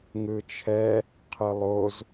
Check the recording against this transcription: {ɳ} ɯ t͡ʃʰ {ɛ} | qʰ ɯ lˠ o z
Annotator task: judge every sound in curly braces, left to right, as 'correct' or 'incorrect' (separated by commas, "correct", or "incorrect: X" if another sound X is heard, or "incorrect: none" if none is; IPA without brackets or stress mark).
incorrect: ŋ, correct